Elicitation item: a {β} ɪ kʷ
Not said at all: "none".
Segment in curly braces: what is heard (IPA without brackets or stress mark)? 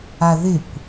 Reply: ð